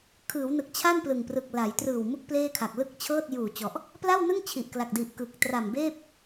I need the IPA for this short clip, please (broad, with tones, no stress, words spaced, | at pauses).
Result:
kʰɯː˩˦wnɯ˨˩k̚t͡ɕʰa˥˩n plɯ˨˩ŋprɯ˨˩k̚ la˩˦j trɯː˨˩wmu˦˥k̚ pleː˥˩kʰa˨˩k̚ lɯ˥˩k̚ t͡ɕʰɤː˥˩t̚juː˨˩t͡ɕɔ˨˩ʔ | pla˥˩wnɯ˥˩ŋ t͡ɕʰi˨˩ʔkla˨˩k̚di˨˩ʔkɯ˨˩k̚ tra˨˩mbeː˥˩p̚